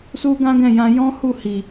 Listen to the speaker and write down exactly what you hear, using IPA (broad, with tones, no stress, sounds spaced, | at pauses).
s u˦ ɡ ã˦ ɡ ɛ̃˦˨ j ã˧ j ɔ̃˦ h u˦˨ h i˨